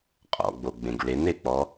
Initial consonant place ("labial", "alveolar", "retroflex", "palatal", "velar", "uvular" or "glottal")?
uvular